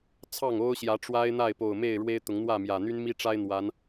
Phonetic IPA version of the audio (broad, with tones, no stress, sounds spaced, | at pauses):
t͡sʰ ɑ˥˨ ŋ o˦ ʊ̯ ɕ j ä˨˦ ʈ͡ʂ w a˦ ɪ̯ n̪ a˥˨ ɪ̯ p o˨˩ ʊ̯ m e˥˨ ɪ̯ ɻ w e˦ ɪ̯ t̪ ʊ˨˦ ŋ n̪ w ä˥˨ m j ä˨˩ n̪ y˦ n m i˦ ʈ͡ʂ a˦ ɪ̯ n̪ w a˨˦ n